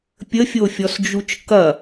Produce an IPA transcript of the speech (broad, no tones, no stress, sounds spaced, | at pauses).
pʲ ə fʲ o fʲ ɔ s d͡ʒ u t͡ʃ k ɐ